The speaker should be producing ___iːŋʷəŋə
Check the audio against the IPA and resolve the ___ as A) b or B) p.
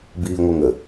A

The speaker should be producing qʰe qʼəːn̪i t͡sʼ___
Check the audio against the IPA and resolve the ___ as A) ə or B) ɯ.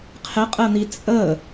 A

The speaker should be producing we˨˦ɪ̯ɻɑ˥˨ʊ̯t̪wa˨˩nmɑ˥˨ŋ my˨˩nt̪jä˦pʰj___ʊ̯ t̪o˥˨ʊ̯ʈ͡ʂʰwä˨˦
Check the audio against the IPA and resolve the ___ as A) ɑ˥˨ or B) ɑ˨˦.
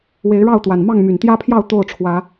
A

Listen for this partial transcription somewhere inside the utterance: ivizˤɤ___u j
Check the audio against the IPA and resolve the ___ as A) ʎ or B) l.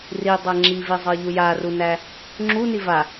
A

